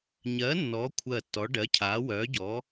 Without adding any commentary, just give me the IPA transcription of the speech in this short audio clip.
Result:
ɲ ɜ˨˥ nː ɔː˨˥ kʷʰ ɜ˧˩ tː ɔ˨˥ ɖ ɜ˨˥ cʰ aː˨˥ w œː˨˥ ɟ ɔː˨˥

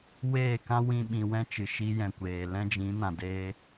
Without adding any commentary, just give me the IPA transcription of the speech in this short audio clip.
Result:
w eː˦˨ k ã˦ w ĩ˦ ɓ ĩ˧ w ɛ̃˦ t͡ʃ ɨ˨ ʃ i˧ j ɛ̃˨ kʷ eː˨ l ɛ̃˦ d͡ʒ ĩ˨˦ n ã˨ d eː˧

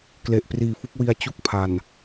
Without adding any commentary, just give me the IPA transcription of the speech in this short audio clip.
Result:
k l e˨˩ ʔ p r iː˨˩ f u˦˥ k̚ w i˧ a̯ t͡ɕ u˥˩ k̚ pʰ a˨˩ n

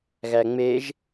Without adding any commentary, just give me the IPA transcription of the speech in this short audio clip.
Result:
ɣ æ ŋ͡m e ʒ

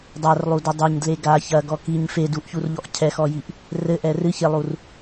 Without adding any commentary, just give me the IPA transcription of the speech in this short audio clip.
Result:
dˤ a r lˠ u d o dˤ ɛ ɲ d l e ɡ a ç ɐ ɡ ɔ k i ɲ f e d u ʔ ç u r ʎ ɔ ʔ cʰ ɛ x ɔ j i ʔ | r ɘ ʔ ɛ r ɨ ç e lˠ u r

